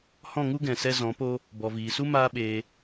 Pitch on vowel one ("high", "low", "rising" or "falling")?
falling